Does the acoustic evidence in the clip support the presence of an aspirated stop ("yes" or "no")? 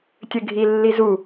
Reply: no